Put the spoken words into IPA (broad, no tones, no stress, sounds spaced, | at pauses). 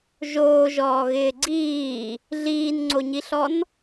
ʒ oː ʒ ɔː ɣ ɪː ɡ͡ǀ iː | ɮ iː n ŋ͡ǀ o ɲ i ɬ ɔ n